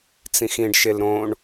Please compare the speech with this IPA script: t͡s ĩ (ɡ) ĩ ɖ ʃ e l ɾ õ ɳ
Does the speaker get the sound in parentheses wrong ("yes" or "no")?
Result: yes